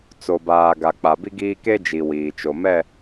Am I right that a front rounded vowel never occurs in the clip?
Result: yes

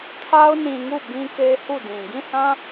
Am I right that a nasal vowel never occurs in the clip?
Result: no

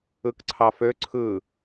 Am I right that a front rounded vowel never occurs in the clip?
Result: no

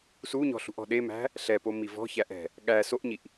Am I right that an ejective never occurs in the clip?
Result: yes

